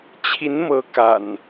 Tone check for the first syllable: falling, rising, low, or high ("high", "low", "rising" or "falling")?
rising